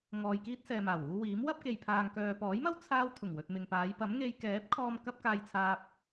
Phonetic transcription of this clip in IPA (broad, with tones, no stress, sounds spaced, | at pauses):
ŋ ɔː˨ j k iː˥ t̚ s ɛː˨ m aː˨˩ w uː˧ w iː˨˥ m w ɐ˥ p̚ k e˨ j pʰ aː˨ ŋ k œː˨ p ɔː˨˥ j m ɐ˥ w t͡sʰ aː˧ w t̪ʰ ʊ˨˩ ŋ w ɵ˨ t̚ m ɪ˨ ŋ p aː˨˧ j p ɐ˨˥ m ŋ e˧ j k ɛː˨˥ p̚ kʰ ɔː˧ m k ɐ˥ p̚ k aː˧ j t͡sʰ aː˧ p̚